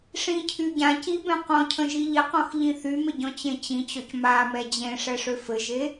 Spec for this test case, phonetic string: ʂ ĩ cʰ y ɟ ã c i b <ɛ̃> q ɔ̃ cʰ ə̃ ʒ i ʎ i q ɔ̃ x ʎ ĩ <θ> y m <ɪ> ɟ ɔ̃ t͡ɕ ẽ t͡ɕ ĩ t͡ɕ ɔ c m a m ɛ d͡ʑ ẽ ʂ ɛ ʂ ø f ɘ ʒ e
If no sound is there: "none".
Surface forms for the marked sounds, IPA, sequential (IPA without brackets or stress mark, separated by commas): ɛ̃, θ, ɪ